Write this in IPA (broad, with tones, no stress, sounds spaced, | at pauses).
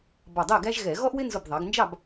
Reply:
b ɑ˧˩ dˤ ɜ˥˨ ɡ æ˥ ʒ ɣ ɛ˧˩˧ ɣ ɔ˥ ʔ w ɪ˥ n z ʊ˧˩ b ðˤ ɑ˩˧ ɡ n d͡ʒ ɑ˥˨ b